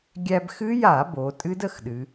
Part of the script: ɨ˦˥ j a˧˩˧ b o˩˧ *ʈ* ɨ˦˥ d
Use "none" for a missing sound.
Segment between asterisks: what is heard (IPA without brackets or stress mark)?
tʼ